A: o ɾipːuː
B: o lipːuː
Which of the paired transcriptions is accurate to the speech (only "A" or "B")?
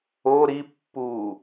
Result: A